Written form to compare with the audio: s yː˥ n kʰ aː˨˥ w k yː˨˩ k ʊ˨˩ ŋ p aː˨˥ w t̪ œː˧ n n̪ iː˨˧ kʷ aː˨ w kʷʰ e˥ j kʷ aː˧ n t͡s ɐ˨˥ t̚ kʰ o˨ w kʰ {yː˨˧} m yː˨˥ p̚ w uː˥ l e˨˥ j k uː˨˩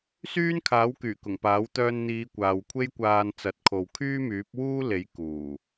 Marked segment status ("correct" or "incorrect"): incorrect